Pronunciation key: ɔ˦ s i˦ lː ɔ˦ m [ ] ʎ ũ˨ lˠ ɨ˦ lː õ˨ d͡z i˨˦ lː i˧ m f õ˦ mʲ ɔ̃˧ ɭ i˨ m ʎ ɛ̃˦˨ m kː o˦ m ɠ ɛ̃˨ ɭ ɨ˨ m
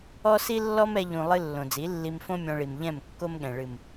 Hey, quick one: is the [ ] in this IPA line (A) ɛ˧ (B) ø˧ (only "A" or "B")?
A